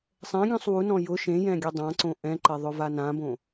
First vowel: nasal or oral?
nasal